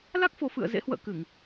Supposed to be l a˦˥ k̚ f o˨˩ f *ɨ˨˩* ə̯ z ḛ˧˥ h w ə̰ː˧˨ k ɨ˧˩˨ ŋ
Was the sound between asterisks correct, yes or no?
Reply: no